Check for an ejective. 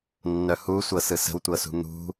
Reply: absent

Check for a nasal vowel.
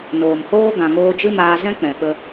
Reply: present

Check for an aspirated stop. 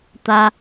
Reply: absent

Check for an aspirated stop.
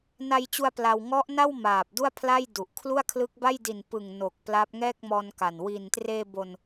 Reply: present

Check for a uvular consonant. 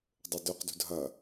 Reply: present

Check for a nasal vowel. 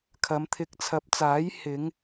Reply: absent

